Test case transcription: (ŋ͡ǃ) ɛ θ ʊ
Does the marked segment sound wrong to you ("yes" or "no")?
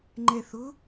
no